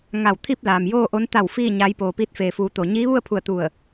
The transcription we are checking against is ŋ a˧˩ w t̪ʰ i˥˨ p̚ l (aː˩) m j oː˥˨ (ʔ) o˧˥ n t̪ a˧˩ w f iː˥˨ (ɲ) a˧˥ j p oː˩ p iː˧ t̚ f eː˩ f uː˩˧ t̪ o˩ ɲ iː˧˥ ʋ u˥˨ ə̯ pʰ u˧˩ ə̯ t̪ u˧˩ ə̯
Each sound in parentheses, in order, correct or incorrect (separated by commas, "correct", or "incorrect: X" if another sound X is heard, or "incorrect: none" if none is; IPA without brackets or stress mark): correct, correct, correct